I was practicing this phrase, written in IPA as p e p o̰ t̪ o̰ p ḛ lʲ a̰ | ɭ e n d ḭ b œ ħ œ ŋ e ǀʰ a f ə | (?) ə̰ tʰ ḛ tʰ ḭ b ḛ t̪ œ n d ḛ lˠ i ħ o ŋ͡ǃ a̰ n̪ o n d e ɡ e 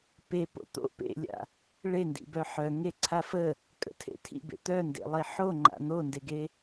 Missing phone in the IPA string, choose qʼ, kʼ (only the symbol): kʼ